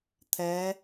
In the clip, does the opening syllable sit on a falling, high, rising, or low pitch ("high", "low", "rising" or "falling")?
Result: rising